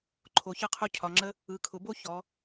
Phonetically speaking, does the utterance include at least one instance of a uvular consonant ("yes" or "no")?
yes